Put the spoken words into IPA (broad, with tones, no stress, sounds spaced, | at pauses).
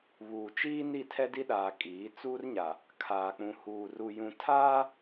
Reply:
β uː˨ t͡ʃ iː˦ n i˦˨ tʰ ɛ˦ d i˦ ɗ aː˨ kʼ iː˨˦ t͡s uː˦ r ɲ a˨ | kʰ aː˨ k͡p ũ˨ h uː˨ r u˨ j ũ˨ tʰ aː˦